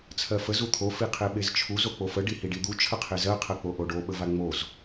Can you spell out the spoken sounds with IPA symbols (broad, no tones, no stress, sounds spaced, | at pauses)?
t͡sʰ ɜ f ə z u t̪ʰ o f i qʰ e ɓ e z t͡ʃʰ u z o k͡p o f ə ɖ i h i ɖ i d̪ u t͡ʃʰ ə qʰ e z ɜ qʰ ɜ k͡p o ʔ o ɖ o ɓ ə v a ŋ͡m o z